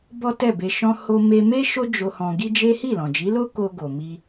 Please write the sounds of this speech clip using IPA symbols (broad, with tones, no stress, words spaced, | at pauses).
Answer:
bɔ˦tɛ˦˨be˧ʃɔ̃˦ ho˧ me˧me˦ ʃo˦d͡ʒo˧ hɔ̃˧ɡi˦d͡ʒe˦ hi˦˨lɔ̃˨d͡ʒi˨˦lo˦ ko˧ɡo˨mi˧